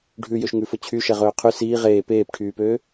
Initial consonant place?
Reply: retroflex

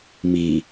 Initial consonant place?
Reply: labial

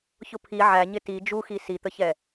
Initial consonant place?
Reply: palatal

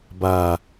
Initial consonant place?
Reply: labial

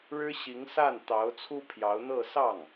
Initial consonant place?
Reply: retroflex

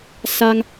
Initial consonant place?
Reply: alveolar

